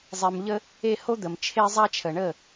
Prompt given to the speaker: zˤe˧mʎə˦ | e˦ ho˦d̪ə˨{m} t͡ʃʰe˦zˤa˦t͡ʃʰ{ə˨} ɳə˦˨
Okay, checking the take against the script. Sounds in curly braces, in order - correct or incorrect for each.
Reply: correct, correct

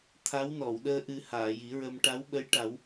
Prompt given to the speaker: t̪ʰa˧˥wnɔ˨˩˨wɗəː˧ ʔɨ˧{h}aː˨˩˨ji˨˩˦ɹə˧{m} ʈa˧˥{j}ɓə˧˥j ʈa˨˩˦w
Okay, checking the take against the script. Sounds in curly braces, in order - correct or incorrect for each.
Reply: correct, correct, incorrect: w

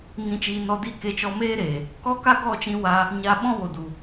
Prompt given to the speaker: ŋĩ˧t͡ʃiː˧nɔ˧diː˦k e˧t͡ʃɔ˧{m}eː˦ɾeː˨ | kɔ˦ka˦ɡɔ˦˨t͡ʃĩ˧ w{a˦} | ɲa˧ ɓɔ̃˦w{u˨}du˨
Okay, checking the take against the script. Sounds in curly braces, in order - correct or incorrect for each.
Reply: correct, correct, incorrect: o˨

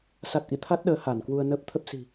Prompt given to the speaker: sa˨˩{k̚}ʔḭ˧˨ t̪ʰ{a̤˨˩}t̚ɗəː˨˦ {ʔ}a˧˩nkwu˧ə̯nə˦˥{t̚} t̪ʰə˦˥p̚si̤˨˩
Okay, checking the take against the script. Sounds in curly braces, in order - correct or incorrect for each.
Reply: incorrect: t̚, incorrect: a˦˥, incorrect: h, incorrect: p̚

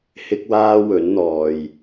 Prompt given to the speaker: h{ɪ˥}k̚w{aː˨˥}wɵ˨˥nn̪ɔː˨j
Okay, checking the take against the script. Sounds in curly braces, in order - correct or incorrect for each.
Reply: correct, incorrect: aː˥

